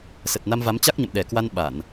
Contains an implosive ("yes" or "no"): yes